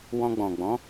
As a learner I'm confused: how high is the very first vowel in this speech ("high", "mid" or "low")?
mid